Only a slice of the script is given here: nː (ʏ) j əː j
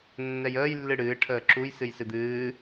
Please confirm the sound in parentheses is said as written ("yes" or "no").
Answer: no